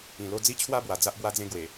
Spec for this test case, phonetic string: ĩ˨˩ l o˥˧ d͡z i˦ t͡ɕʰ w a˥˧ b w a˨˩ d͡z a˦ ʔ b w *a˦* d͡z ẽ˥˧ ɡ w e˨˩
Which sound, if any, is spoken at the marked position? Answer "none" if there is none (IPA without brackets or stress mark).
a˦